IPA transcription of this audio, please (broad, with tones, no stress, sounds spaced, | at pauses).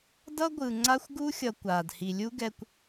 d ʌ˦ ɡʷ ɯ˨ ŋ͡ǀ a˦ xʷ ɡ u˦ xʲ ʌ˨ kʷ aː˨ d h i˨ lʲ u˦ ɡ ɛ˨ kʷ